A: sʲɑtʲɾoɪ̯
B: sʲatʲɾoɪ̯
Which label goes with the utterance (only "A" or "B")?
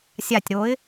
B